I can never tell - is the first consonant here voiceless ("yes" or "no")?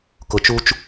yes